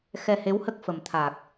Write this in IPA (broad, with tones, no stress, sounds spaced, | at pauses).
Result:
x ɛ˧ h e˧˥ w h ə˦˥ k̚ f ə˨˩ m t̪ʰ a˨˩ k̚